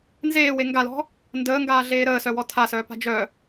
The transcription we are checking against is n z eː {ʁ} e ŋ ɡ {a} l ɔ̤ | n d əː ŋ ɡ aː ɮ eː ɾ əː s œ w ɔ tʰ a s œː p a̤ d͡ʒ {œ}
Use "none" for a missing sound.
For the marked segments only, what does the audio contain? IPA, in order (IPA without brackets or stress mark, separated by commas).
w, a, œ